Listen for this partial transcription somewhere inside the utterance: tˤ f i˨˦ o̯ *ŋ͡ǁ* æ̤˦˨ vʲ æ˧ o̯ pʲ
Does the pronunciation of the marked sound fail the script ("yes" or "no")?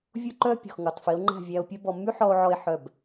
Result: yes